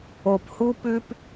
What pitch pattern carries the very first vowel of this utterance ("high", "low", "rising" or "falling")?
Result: low